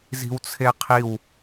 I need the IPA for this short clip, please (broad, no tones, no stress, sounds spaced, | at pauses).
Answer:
z i̤ w t͡sʰ e qʰ i w